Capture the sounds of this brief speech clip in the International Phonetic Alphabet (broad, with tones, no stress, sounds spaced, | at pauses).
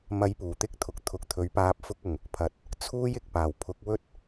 m ɐ˨˧ j p uː˨˩ t̪ ɪ˥ k̚ t̪ʰ ʊ˨˥ k̚ t̪ʰ ʊ˨ k̚ t̪ʰ ɵ˨˥ ɥ p aː˧ p̚ f ʊ˥ k̚ ʊ˨ ŋ | pʰ ɐ˨ t̚ | t͡sʰ uː˥ j ɪ˨ k̚ p aː˨˩ w pʰ ʊ˨˥ k̚ w ɵ˥ t̚